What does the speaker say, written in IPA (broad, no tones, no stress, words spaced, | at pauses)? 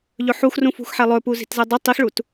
ʎɵħuxrũfṳx ħɛlˠɵpu zi̤tzɛdˤɵ tˤixɭut